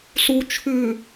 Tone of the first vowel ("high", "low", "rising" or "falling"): low